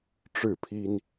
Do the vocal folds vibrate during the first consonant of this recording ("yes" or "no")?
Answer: no